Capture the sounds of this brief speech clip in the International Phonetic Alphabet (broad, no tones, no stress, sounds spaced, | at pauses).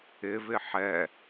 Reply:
ɪ v ɪ ħ ɛ